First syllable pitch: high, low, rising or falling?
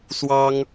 high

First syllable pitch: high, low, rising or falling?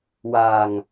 low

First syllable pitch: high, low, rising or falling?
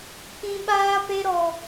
high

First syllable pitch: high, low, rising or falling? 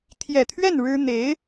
low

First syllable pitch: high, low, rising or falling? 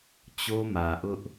high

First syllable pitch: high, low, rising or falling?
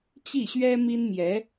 falling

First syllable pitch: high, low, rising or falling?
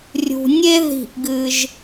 low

